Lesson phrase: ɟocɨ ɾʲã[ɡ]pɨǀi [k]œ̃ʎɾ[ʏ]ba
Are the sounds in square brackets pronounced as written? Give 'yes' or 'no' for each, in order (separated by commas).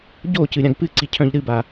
yes, no, no